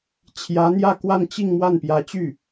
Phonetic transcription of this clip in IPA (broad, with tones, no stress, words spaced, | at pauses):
t͡ɕʰjä˧˥n̪jä˥˧ kwa˥˧nt͡ɕi˥˧ŋ mwa˥˩npjä˧˥t͡ɕy˥˩